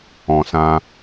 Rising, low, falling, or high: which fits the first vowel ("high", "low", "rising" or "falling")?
low